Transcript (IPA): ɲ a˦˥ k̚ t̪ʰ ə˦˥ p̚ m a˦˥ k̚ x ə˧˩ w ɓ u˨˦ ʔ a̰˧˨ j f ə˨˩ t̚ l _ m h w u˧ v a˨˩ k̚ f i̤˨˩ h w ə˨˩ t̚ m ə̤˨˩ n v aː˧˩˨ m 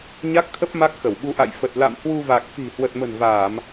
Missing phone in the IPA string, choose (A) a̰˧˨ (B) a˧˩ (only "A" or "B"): A